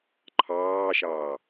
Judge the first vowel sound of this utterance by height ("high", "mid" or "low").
low